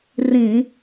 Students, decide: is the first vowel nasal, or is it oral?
nasal